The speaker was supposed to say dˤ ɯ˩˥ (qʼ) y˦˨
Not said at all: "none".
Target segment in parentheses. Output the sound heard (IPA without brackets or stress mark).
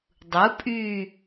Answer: pʼ